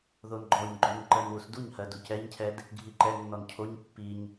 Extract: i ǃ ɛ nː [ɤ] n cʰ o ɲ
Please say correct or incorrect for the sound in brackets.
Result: incorrect